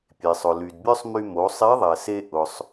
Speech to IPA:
pʲe˩sˤʊ˩ ly˩dbʲœ˥sˤmy˧ mo˩˧sˤe˧˥ðˤɛ˩se˧ ʔʊ˩sˤ

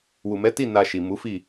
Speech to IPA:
wu˨mɛ˨˦ti˦˨ na˧ʃi˨ mu˨˦fi˦˨

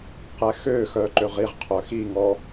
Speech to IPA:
qɛxøxœ ǃøʁiʁqʰœ xiŋɔ

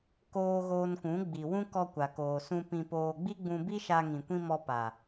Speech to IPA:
koː˧ ɣoː˧nkũ˨˦ ɡ͡bi˨wũ˦ kɔ˧kʷa˨koː˨ sũ˧ pĩ˧poː˧ ɡ͡bi˦ɡ͡bũ˧bi˦ʃa˧ ŋĩ˨kʷĩ˧ mɔ˧pa˨

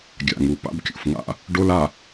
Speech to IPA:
ɡʲa̰˨ŋu˨ pa̰˦bkʲṵ˨fŋa̰˦ | ɖo˦la˨

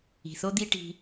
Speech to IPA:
i̤˨θo˦d̪i˦ ʈi̤˧

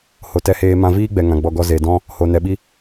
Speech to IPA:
ho˨tɛ˧heː˧ mã˧viː˦ɡ͡bɛ˨ ŋã˨ɡ͡bɔ˧ ɡɔ˧ze˨dɔ̃˦ | ho˨nɛ˨ɓi˦

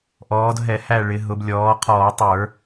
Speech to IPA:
ʔɔː˩˧dɦɛ˧˩˧ hæ˦˨ɭɪ˩˧ɦʊ˩˧b lʲɔː˩˧qʰɔː˧˩˧tˤə˞˧˩˧

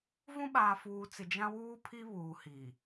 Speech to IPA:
vũ˦ɓaː˨fuː˨t͡sɪ˨ d͡ʒã˦wuː˦pʰi˦ βuː˨hi˨

